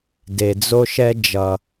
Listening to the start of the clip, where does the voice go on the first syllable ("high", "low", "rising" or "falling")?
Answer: low